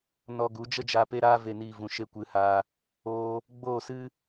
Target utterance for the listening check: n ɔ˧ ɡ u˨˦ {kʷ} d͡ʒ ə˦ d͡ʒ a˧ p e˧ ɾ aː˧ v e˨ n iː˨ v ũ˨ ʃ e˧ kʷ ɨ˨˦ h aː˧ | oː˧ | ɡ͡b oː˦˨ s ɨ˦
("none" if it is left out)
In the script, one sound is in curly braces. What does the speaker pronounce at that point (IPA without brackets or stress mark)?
none